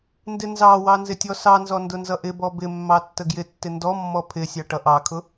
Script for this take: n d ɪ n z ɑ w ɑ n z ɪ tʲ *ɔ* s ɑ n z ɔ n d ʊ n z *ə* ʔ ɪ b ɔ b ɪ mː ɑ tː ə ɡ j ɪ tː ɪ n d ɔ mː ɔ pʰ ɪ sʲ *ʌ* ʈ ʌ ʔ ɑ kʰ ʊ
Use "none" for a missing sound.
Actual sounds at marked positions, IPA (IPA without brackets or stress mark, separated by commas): ɔ, ʌ, ɑ